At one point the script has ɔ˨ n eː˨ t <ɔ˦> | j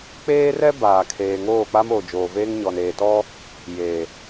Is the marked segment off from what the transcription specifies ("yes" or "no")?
no